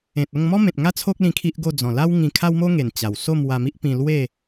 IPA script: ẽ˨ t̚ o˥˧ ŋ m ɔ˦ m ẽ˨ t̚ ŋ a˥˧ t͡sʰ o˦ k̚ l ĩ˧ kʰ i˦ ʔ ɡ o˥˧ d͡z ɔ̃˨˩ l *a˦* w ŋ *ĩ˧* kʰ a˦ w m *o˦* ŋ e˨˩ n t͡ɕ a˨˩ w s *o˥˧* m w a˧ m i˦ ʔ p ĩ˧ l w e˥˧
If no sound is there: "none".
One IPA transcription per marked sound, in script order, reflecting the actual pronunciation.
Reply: a˦, ĩ˧, o˦, o˥˧

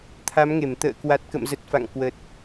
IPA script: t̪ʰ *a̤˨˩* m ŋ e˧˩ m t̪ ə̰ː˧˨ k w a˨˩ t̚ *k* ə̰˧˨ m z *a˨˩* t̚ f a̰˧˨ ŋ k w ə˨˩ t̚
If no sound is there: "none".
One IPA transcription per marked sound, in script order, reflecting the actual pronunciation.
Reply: a˨˦, k, ə˨˩

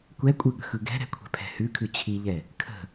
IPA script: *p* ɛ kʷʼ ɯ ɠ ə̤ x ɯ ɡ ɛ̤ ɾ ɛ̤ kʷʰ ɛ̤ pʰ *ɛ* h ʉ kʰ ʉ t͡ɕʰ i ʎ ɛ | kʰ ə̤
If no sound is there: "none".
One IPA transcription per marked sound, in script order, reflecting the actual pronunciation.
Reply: kʷ, ɛ̤

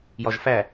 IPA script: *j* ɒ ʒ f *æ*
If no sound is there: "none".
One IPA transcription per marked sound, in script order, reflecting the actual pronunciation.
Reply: j, æ

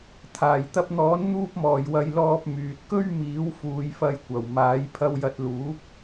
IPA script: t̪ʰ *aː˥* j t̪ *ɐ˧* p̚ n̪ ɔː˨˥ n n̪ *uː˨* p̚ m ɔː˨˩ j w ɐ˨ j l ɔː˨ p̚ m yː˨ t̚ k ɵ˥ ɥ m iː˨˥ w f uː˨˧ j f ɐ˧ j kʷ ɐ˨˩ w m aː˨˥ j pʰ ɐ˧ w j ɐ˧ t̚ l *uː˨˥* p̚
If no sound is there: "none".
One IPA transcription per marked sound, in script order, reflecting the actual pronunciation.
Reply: aː˨˩, ɐ˧, uː˧, uː˨˥

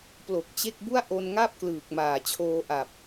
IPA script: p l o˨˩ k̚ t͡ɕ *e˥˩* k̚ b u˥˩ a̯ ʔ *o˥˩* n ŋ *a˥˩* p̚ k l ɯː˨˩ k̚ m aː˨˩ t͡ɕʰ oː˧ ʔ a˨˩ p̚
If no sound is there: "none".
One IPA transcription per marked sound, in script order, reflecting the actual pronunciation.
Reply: e˥˩, o˧, a˥˩

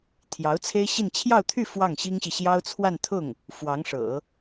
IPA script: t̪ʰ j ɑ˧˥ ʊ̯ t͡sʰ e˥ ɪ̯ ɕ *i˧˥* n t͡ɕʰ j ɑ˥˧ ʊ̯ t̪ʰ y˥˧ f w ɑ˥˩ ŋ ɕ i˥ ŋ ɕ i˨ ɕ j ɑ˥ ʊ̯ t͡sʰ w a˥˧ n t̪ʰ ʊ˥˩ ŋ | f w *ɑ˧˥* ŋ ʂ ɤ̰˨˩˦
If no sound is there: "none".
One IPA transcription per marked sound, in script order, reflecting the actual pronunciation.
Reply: i˥˧, ɑ˧˥

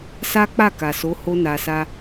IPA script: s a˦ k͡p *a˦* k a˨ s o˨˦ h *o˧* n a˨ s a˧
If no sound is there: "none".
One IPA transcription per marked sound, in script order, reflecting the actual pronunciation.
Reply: a˦˨, o˧

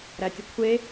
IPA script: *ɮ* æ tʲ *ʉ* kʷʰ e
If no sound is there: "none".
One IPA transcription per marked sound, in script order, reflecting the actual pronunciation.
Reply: ɾ, ə

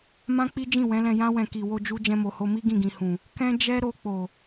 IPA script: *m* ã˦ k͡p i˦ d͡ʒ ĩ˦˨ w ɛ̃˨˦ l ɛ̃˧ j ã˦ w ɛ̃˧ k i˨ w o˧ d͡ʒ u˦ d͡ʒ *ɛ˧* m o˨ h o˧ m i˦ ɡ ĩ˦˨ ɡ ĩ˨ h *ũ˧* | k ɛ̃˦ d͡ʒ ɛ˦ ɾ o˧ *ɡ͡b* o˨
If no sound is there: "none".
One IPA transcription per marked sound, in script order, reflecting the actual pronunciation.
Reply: m, ɛ̃˧, ũ˨, k͡p

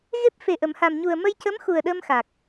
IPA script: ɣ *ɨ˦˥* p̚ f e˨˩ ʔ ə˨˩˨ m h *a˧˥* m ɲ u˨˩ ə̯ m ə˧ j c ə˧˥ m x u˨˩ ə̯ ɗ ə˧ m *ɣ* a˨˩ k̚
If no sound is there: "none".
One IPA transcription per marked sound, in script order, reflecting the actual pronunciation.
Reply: e˦˥, a˨˩, x

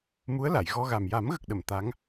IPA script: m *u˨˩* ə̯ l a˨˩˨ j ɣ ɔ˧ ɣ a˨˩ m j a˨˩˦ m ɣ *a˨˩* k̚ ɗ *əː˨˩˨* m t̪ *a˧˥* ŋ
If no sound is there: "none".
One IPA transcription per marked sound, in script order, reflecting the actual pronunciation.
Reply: u˧˥, ə˨˩, ə˨˩˨, a˧˥

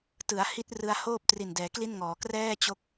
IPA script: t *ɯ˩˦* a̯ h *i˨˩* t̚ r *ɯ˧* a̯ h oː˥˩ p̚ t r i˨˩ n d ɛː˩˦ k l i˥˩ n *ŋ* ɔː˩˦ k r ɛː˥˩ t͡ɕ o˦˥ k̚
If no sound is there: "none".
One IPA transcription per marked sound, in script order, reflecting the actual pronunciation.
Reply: ɯ˩˦, i˦˥, ɯ˧, ŋ

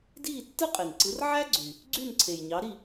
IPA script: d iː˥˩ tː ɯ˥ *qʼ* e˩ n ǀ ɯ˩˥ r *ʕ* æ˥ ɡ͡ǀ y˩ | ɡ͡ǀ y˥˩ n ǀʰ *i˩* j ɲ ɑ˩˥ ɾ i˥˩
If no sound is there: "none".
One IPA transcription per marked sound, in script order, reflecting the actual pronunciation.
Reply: qʼ, ʕ, e˩

